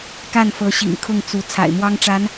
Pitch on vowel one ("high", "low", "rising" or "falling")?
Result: falling